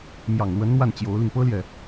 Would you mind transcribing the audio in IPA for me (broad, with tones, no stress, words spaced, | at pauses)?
mjɑ˨˩ŋlwə˧˥n n̪wa˥˩nt͡ɕjo˧˥ʊ̯li˧ŋ pɤ˥ljɛ˨